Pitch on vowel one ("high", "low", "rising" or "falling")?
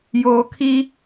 low